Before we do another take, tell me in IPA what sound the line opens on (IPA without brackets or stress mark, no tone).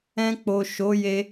ɛ̃